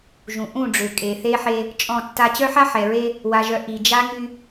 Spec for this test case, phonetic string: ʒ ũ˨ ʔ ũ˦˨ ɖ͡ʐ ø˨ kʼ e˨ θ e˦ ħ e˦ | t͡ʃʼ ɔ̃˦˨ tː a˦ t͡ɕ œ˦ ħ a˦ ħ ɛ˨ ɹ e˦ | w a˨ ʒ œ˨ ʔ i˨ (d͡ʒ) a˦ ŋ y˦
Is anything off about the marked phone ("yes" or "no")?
no